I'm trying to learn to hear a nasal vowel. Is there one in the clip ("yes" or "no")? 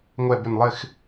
no